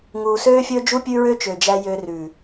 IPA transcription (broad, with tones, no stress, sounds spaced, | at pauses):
ŋ uː˨ s øː˦ fʲ ɵː˦ d͡ʒ u˦ pʲ ʉ˦ ɹ ø˦ t͡ʃ ø˨ d͡ʒ æ˧ j ø˧ r ʉː˨